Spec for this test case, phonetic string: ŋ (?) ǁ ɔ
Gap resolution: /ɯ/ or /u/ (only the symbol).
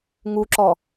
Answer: u